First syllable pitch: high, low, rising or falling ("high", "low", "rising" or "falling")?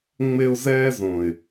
high